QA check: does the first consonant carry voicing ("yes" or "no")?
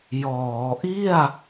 yes